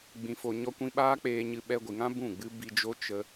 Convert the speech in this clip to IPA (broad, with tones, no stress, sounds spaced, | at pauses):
ɡ͡b ĩ˧ f o˧ ɲ ɔ˦ kʷ ĩ˦ ɓ aː˦ k͡p eː˧ ɲ ɨ˧ ɓ ɛ˧ ɡʷ i˨ ŋ ã˦ b ũ˦˨ ɡ͡b ɨ˦ b i˧ d͡ʒ o˦ t͡ʃ ə˧